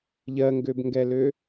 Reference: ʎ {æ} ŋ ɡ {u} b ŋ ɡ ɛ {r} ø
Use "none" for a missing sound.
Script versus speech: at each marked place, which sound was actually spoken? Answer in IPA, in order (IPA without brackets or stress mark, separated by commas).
ɜ, ø, l